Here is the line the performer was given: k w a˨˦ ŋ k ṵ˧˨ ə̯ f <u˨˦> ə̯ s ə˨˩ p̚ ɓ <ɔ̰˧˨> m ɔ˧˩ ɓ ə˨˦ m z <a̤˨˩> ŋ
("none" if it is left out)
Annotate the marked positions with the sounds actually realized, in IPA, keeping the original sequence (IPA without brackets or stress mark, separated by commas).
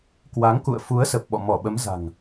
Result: u˨˦, ɔ̰˧˨, a̤˨˩